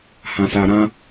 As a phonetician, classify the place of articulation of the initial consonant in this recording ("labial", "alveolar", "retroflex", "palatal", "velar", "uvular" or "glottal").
glottal